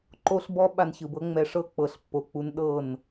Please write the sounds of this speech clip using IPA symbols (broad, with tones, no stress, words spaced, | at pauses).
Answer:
ǃo˦ɬbɔ˦ ɓa˧nçɯ˨bɤ˦ŋ͡mɛ˧ ʂɤ˦ k͡pɤ˨ɬpːo˨k͡pu˧n ɗɤ˦˨n